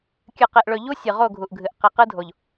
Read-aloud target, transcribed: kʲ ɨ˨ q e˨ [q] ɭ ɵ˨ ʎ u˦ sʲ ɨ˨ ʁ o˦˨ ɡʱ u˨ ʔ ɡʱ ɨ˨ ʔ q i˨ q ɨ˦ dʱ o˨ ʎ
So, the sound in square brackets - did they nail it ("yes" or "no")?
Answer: no